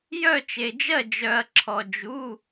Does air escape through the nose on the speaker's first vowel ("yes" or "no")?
no